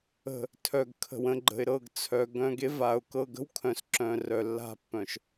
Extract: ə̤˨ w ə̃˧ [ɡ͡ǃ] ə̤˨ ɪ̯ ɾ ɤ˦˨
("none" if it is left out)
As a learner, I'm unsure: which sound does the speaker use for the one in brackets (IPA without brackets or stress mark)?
ɡ͡ǃ